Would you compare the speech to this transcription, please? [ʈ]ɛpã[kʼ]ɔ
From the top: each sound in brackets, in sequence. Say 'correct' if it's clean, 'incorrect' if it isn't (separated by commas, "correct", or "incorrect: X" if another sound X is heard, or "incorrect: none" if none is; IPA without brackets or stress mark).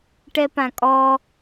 correct, correct